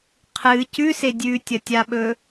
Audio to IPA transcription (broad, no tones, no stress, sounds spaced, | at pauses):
qʰ ɨ c ʉ s e dʲ ʉ tʲ ɐ tʲ a ɓ ɵ